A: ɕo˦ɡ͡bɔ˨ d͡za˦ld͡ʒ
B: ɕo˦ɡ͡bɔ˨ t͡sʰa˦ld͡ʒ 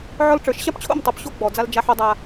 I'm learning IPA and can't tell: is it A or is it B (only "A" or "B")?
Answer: A